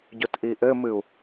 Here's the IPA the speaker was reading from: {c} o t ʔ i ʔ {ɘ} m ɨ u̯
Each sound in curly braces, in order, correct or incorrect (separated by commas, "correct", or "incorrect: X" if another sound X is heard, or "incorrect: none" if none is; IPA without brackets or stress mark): incorrect: ɟ, correct